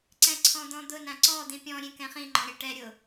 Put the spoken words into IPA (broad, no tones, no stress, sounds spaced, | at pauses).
ǀ ɛ̃ ǀʰ ɔ̃ d̪ ɔ̃ d̪ ʊ n ã ǀ ɔ d̪ ĩ pʲ ɔ̃ ɾʲ ẽ k ɛ̃ χ ĩ ŋ͡ǃ ɔ̃ ɾʲ ɛ ʈ ɛ ɾʲ ʊ